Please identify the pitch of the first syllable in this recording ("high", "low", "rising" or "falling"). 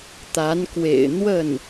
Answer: rising